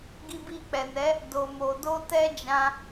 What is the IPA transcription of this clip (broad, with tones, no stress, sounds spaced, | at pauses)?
ɡ i˧ b i˧ k͡p ɛ˨ n ɛ˨˦ | d o˨ m o˨ d o˧ t ɛ˦ d͡ʒ ã˧